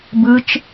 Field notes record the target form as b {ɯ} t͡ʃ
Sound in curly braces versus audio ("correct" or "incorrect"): correct